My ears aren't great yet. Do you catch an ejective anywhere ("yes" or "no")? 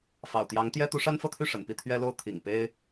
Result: no